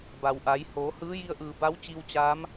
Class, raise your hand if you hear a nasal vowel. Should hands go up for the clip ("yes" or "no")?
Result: no